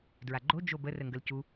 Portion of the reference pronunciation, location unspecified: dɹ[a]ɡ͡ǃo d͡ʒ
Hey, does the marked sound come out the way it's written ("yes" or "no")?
yes